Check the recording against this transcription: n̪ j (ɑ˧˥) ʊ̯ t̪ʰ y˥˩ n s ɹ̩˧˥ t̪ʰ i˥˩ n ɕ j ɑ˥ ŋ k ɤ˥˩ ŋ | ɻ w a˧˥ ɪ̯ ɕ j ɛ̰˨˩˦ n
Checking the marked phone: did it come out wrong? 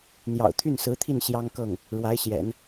yes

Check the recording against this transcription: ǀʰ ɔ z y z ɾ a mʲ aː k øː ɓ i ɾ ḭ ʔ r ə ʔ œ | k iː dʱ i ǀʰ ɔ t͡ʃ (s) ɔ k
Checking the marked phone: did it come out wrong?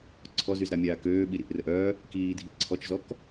yes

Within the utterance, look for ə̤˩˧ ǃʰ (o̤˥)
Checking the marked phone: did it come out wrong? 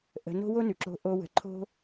no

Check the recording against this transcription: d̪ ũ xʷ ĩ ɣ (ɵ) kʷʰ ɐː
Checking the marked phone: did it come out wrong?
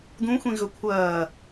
no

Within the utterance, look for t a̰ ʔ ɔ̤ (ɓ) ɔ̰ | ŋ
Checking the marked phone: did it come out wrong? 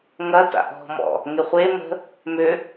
yes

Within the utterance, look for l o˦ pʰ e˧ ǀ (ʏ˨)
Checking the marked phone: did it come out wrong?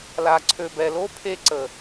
yes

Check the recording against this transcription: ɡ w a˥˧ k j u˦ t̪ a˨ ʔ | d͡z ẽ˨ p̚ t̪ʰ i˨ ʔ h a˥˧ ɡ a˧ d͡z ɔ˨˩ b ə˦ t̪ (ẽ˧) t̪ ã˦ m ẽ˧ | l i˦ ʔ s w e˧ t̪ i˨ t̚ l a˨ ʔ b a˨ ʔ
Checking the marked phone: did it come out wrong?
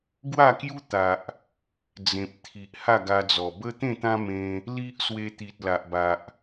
yes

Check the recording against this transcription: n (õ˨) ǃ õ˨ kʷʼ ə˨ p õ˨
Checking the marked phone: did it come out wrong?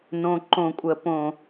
no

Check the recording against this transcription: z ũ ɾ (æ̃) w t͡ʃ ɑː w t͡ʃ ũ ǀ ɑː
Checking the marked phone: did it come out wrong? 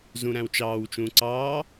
no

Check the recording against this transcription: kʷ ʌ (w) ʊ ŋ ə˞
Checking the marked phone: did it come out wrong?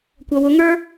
no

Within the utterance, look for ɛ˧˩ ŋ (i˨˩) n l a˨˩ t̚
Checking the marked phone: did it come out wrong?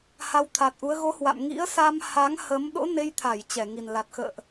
no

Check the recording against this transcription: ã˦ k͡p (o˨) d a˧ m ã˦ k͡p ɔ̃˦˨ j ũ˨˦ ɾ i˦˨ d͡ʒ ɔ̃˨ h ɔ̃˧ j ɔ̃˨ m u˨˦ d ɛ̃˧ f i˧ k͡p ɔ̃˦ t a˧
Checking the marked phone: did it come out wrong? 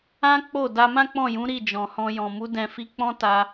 yes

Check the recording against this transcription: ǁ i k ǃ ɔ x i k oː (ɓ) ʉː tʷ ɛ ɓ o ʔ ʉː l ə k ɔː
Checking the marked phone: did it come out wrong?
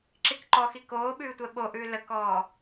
no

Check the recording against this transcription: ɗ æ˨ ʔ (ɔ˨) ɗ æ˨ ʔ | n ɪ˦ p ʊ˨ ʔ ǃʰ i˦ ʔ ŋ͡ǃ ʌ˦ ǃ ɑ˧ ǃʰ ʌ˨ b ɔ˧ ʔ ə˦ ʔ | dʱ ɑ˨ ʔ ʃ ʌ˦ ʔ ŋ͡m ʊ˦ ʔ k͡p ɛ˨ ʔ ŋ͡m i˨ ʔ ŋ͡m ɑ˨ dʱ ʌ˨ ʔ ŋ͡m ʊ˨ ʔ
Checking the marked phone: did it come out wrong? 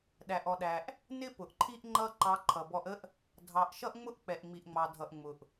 no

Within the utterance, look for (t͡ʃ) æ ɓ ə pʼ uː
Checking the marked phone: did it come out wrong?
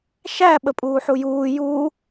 yes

